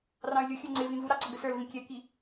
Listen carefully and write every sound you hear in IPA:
rɑ̃y̯lʲʊxʲə˞ ŋ͡ǀɪ vĩvuɾɑ ǀʌɡəsə˞lvĩ kʲɛki

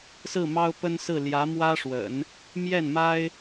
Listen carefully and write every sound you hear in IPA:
sɹ̩˥˩mɑ˥ʊ̯pə˥nsɹ̩˥˩ ljä˧˥mwä˥ʂwə̰˨˩˦n | mjɛ˥˩nma˥ɪ̯

